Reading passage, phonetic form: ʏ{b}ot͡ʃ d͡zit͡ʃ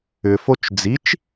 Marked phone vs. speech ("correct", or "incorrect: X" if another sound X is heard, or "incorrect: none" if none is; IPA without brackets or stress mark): incorrect: f